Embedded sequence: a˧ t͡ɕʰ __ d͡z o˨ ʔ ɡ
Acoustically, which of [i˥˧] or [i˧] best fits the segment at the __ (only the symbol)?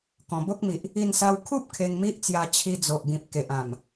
i˧